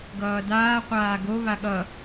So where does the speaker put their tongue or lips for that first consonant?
velum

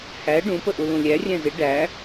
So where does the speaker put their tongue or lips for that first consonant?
throat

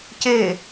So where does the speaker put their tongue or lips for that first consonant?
palate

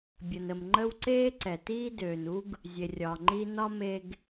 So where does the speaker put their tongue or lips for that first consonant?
lips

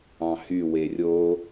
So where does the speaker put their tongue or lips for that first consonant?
throat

